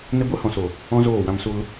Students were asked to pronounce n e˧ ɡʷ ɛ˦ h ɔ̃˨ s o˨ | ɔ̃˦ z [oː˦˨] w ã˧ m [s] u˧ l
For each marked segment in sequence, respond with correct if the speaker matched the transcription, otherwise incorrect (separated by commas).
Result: correct, correct